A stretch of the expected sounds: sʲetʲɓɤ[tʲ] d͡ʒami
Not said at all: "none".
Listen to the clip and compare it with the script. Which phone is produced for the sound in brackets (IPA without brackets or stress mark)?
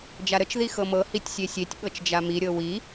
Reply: t͡ʃ